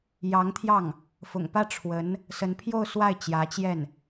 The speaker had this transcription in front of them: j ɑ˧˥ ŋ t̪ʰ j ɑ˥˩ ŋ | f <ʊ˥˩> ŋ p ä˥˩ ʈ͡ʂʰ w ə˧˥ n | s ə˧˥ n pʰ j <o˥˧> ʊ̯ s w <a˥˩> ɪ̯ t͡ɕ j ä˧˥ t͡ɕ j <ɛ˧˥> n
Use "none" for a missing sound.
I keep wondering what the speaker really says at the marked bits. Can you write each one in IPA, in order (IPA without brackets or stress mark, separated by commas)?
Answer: ʊ̰˨˩, o˥˧, a˥˩, ɛ˥˩